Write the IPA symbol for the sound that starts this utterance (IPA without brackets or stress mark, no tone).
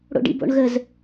ɽ